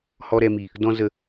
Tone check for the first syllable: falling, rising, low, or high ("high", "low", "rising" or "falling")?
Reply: low